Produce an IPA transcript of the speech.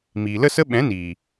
m iː˨ l ə˦ s ə˦ ɓ ɛ̃˨˦ n iː˨

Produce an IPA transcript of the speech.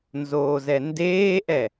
n z oː z ɛ n d eː ʔ ɛ

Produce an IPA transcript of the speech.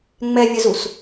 ŋ͡m ɛ vʲ ə z u s

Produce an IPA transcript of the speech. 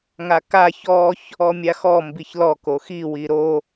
ŋ a k a ç ɔ ç | ɔ mʲ a x ɔ m b i ç l ɔ k o x i w i ɾ o

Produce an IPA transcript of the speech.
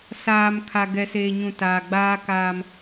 s aː˨ m kʰ a˨ ɡ ɛ˨ s eː˨ ɲ ũ˨ t aː˨ ɡ͡b aː˦ k aː˦ m

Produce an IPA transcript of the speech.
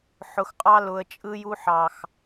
ħ ʊ˨ x qʼ ɑ˦ l ʊ˨ ə̯ t͡ʃʼ ɯ˦ j u˦ ħ ɑ˨ x

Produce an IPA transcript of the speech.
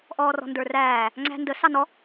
ʔ ɔː r ɔ̤ n d ə˞ r æː | ŋ͡ǀ æ̤ n d ə s ɑ n ɔ

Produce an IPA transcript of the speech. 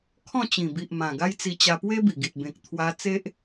kʰ ɔ̃˥˧ t͡ɕ ĩ˨˩ b i˨ ʔ m ã˨˩ ɡ a˦ j t͡s i˧ t͡ɕ a˧ p w e˦ b i˨˩ ɡ i˨ t̚ b ẽ˨ k̚ t̪ʰ w a˧ t͡s e˦ ʔ

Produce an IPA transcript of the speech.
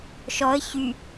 ʃ ɔ ə̯ ç y

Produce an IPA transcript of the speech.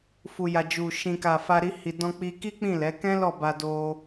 f u˨ j a˨ d͡ʒ u˨ ʃ ĩ˨ k a˨ f a˧ ɾ i˧ h i˨ d ɔ̃˧ k͡p i˧ k i˦ k͡p ĩ˦˨ l ɛ˨˦ k ɛ̃˦ l ɔ˦˨ b a˧ d o˧

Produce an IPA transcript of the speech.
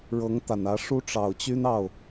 ɻ ɤ˧˥ ŋ t̪ a˨˩ n ä˧˥ ʂ u˥ ʈ͡ʂ ɑ˨˩ ʊ̯ t͡ɕ y˥ n ɑ˥˩ ʊ̯

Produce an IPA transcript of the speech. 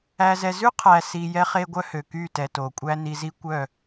æ˨ z ɛ˨ z ʉ˦ qʰ æ˨ s i˨ j ɛ˦ χ e˦ ɡʷ œ˦ h ø˨ k y˦˨ t ɛ˨ t o˨ kʷʼ æ˦ n i˨ z i˦ kʷ œ˦˨

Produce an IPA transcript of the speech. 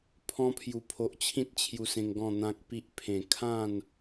pʰ ɔ̃˧ pʰ j u˨˩ pʰ o˨ ʔ t͡ɕʰ ĩ˦ t̚ t͡ɕʰ j u˧ s ẽ˧ ŋ ɡ ɔ̃˥˧ n̪ ã˦ k̚ p i˦ ʔ pʰ ẽ˨˩ kʰ ã˥˧ n

